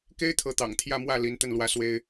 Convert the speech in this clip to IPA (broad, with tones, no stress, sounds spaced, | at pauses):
k e˥ ɪ̯ t̪ʰ ɤ˧˥ t̪ ɑ̰˨˩ ŋ t̪ʰ j ä˥˧ m w ä˥˩ l i˧˥ n t̪ ə˥˩ n l w ä˧˥ s w e˥ ɪ̯